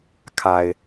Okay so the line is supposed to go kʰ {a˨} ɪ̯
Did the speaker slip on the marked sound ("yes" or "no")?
no